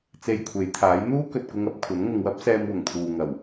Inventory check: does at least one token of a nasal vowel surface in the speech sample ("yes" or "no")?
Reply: no